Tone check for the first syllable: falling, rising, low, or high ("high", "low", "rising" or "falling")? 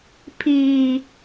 high